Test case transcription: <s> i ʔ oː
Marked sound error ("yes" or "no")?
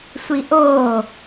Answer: yes